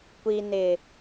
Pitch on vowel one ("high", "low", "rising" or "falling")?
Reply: low